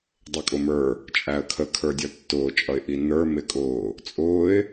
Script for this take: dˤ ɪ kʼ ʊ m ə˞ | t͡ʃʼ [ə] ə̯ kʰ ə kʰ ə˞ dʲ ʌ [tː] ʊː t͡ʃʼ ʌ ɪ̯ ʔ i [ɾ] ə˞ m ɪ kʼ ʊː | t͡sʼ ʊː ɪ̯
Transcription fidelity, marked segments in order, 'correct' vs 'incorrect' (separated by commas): incorrect, correct, incorrect